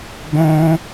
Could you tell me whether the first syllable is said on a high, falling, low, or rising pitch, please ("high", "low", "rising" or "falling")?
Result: high